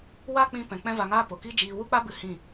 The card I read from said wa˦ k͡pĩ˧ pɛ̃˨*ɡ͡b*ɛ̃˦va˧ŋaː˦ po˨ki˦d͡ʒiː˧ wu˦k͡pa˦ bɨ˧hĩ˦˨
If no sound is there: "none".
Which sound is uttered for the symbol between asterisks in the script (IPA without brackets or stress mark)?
k͡p